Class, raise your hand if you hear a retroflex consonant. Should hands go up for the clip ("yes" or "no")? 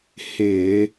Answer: no